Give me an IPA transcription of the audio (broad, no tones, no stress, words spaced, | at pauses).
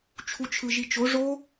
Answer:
t͡ʃʰut͡ʃʰɯʒit͡ʃo ʐo